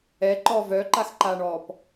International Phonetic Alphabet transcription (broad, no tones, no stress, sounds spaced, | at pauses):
ɛ ǃ ɔː v œ ǃ a x ǃ aː ɳ ɔː p